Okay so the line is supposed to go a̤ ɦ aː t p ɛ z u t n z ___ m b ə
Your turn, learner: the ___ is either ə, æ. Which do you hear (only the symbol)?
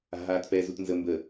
ə